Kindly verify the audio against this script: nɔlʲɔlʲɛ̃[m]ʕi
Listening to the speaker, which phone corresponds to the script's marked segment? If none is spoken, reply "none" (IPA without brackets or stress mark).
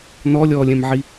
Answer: m